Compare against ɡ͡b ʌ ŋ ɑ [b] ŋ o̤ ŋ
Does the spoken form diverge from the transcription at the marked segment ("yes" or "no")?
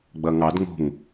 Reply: yes